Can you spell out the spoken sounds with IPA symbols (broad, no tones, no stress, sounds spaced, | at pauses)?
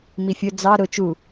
m i fʲ ʊ d͡z ɑ ɾ ʊ t͡ʃ u